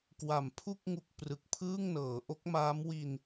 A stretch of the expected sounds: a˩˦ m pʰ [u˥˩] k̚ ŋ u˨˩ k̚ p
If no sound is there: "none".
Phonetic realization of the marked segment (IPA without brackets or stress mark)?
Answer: u˥˩